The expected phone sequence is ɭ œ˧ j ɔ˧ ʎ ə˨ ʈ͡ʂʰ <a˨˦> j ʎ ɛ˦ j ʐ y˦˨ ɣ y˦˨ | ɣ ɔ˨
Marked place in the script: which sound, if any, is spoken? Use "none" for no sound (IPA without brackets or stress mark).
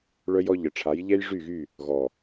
a˨˦